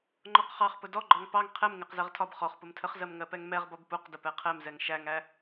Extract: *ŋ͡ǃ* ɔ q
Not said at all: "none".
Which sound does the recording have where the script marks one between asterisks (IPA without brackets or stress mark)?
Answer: ŋ͡ǃ